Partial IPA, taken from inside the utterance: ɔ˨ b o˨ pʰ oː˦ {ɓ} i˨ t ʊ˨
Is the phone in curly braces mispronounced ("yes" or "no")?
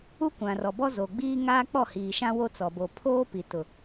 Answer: yes